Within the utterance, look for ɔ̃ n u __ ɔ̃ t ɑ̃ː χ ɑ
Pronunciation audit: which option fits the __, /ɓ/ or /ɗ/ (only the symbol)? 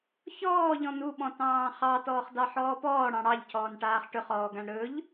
ɓ